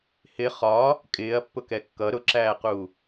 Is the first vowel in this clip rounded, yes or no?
no